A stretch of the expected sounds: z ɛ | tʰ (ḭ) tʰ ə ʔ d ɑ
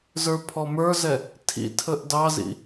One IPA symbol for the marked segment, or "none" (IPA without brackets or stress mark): ḭ